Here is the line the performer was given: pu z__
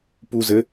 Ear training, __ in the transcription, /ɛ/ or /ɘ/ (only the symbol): ɘ